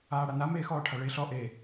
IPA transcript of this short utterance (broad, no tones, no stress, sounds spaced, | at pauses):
aː ɽ a n̪ a m eː x ɔː ʈʰ a ɭ eː ɬ ɔ ʔ e